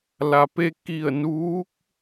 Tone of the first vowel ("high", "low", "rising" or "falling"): low